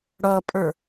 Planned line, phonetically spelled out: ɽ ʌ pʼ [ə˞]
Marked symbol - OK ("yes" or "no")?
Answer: yes